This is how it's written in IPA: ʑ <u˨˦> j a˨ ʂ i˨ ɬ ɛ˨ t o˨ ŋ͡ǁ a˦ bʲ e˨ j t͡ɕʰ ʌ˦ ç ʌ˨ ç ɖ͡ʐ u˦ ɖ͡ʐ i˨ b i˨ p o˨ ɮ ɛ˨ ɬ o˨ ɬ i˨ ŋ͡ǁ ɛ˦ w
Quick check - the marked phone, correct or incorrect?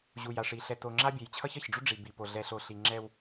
incorrect